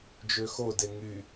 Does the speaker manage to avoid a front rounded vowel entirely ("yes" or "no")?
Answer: no